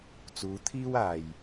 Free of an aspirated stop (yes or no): no